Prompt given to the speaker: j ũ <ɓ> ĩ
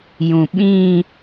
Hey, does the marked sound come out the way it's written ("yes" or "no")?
yes